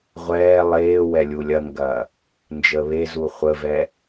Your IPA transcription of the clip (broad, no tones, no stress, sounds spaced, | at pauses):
ʁʷ ɛː lˠ eː w ɛ lʲ u lʲ ɐ ŋ ɡ ɐ | n d͡ʒ əː β e z u χʷ ə v ɛ